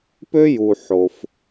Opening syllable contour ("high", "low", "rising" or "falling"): high